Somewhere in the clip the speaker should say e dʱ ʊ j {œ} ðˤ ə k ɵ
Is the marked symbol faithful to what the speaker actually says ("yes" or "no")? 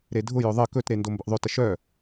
yes